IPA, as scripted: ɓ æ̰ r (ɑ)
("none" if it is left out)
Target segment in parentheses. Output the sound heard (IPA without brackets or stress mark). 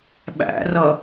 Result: ʌ